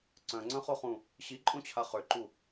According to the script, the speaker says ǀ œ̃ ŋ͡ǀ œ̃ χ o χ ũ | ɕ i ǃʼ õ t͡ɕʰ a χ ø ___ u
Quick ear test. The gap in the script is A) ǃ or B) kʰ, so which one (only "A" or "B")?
A